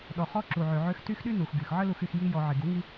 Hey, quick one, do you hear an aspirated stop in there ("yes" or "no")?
no